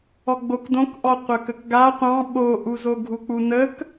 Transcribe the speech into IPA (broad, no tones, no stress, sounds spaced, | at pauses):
ɔ ɡ͡b o k d õ k ʔ ɔ qʷ ə k ə k ɡ a qʷ ɑ̃ ɓ o ʔ u z o ɡʱ u k͡p u n ə k